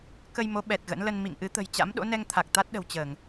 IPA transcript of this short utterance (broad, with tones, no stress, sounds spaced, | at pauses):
k ə˧ j m o˨˦ ɓ ɛ˨˩ t̚ ɣ ə̰˧˥ n l ə˧ n m ḭ˧˨ ŋ ʔ ɨ˨˦ t̪ ə̤˨˩ j t͡ɕ a̰˧˥ m ɗ o̰˧˥ n ɛ˧ ŋ t̪ʰ a˨˩ k̚ t̪ a˦˥ t̚ ɗ ə̤˨˩ w t͡ɕ əː˧˩˨ ŋ